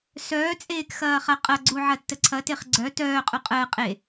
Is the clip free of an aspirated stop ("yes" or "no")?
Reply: no